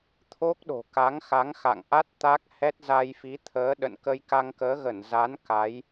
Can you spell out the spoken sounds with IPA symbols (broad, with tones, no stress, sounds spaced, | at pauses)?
t̪ʰ o˦˥ k̚ ɗ o̤˨˩ k a˨˦ ŋ x a˨˦ ŋ x a̰˧˨ ŋ ʔ a˦˥ t̚ t̪ a˦˥ k̚ h ɛ˦˥ t̚ z a˧ j f i˨˦ t̪ʰ əː˨˦ ɗ ə̰˧˨ n k ə˧ j k a˧ ŋ k əː˨˦ ɣ ə˧˩ n z a˨˦ n k a˨˦ j